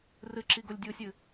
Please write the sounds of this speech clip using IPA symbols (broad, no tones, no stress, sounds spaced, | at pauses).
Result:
r ɨ ǁ i ɡ o lʲ dʲ u sʲ ɨ